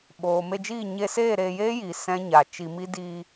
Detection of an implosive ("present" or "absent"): present